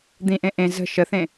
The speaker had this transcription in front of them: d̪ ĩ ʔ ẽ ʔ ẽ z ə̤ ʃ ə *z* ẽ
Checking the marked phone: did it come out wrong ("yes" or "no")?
yes